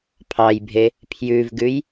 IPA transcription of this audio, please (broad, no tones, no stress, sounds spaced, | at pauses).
pʰ ɑ j bʱ e | pʰ j ʉ v ɡ ʉ j